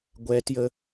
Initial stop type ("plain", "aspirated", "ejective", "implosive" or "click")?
plain